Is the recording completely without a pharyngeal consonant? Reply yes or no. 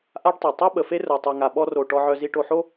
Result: no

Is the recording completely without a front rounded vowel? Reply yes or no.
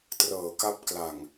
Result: yes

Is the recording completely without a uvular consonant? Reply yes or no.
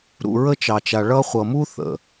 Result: no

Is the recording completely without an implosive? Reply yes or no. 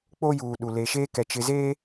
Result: no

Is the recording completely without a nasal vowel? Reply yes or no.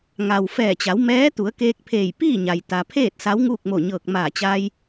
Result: yes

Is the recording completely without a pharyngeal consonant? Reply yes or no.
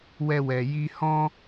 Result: yes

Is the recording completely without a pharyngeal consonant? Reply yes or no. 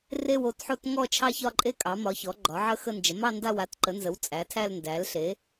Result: no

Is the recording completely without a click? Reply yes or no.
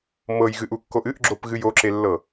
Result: no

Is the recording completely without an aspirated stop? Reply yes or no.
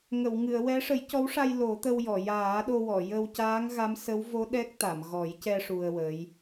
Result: yes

